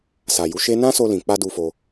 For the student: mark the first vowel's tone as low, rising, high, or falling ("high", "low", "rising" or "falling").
low